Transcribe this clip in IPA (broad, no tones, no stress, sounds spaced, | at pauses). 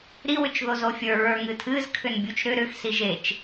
ɾ i w ʏ t͡ʃ ð o z o fʲ ə˞ ɹ ə˞ ŋ ɨ tʰ ɨ z kʰ ʏ n bʲ u t͡ʃ ɾ ʏ ɾ ʏ x s i ʒ e t͡ʃ